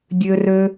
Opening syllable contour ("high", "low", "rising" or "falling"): high